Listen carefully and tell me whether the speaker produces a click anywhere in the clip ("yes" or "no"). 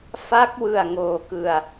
no